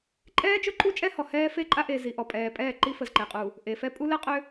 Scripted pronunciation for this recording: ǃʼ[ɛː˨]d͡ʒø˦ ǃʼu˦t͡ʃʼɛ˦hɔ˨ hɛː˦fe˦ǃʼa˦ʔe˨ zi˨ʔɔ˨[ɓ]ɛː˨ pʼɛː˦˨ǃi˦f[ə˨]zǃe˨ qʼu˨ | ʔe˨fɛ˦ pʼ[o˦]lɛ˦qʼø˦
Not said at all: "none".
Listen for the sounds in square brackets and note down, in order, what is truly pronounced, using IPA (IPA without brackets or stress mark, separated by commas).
ɛː˦, pʼ, ə˨, u˦